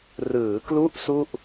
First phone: r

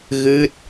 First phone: ɣ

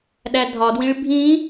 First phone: ɗ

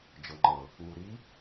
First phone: d͡ʒ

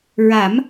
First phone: ɹ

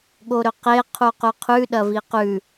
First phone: ɠ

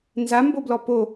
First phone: n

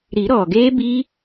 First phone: ɾ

